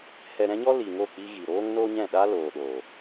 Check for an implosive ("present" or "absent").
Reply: present